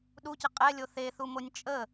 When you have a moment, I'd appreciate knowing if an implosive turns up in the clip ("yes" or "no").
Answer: yes